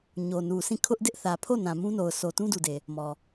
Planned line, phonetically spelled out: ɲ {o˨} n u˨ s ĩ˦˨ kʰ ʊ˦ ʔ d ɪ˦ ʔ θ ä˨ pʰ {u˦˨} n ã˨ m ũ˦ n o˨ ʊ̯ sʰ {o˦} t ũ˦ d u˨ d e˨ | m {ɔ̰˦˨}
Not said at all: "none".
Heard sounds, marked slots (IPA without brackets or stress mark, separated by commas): o˨, o˦˨, o˨, ɔ˨